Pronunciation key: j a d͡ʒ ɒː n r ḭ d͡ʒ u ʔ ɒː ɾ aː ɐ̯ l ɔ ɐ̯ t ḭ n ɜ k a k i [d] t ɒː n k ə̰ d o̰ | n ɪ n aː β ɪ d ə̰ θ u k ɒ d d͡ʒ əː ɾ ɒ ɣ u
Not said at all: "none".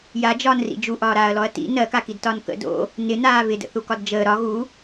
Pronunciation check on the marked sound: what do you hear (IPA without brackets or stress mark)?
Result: d